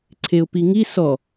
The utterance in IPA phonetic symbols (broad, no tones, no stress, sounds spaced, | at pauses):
ǀʰ e ʊ̯ p i ŋ i s ɔ